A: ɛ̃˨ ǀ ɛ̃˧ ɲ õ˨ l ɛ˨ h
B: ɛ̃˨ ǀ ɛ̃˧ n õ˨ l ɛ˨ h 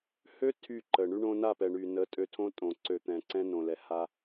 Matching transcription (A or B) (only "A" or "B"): B